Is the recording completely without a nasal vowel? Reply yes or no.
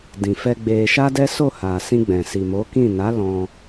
no